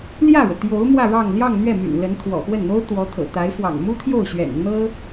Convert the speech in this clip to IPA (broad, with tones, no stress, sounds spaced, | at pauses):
l j ä˥˩ ɻ ɤ˩ t̪ j o˧˥ ʊ̯ m w ä˥˧ ɻ ɑ˥˧ ŋ l j ɑ˥˧ ŋ n̪ ɥ ɛ˥˩ m y̰˨˩ n l ə˧˥ n t̪ʰ w ɔ̰˨˩ x w ə˥˩ n n̪ o˥ ʊ̯ t̪ w ɔ˧˥ t̪ʰ ɤ̰˨˩ t̪ a˧˥ ɪ̯ f w ɑ̰˨˩ ŋ m u˥ t̪ʰ j o˥˩ ʊ̯ ɕ ɥ ɛ̰˨˩ n n̪ ɤ˥